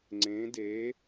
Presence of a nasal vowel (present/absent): present